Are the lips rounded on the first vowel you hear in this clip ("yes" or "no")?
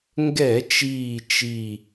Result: no